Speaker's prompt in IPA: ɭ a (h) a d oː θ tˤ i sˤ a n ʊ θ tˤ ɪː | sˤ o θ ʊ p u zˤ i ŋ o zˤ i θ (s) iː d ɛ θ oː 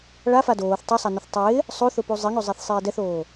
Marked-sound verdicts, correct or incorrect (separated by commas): incorrect, incorrect